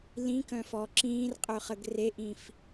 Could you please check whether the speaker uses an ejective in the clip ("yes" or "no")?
yes